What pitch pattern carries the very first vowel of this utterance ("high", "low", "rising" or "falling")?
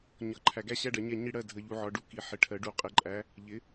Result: low